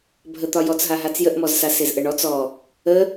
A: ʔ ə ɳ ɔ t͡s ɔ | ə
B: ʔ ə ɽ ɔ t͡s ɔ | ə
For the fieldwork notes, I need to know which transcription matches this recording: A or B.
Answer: A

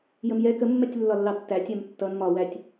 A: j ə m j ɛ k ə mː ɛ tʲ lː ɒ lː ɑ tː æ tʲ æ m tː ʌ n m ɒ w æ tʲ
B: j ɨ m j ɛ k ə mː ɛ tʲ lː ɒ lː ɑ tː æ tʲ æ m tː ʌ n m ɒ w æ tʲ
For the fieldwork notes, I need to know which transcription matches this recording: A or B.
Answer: A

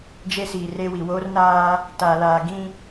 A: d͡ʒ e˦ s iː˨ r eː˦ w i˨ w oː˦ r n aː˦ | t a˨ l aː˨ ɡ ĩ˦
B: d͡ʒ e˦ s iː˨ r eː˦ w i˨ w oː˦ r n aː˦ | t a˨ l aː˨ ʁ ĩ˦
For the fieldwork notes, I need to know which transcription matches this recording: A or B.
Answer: A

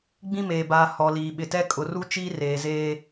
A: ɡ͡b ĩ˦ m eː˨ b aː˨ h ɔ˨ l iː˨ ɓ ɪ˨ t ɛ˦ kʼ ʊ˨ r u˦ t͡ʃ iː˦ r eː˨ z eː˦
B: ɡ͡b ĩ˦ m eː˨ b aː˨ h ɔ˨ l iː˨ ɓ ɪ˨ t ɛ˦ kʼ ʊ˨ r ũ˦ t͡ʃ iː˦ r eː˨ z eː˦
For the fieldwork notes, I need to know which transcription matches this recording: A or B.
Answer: A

